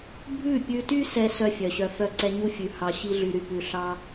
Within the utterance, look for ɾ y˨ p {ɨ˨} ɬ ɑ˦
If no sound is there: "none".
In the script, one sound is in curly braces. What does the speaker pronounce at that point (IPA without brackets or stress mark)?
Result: ʉ˨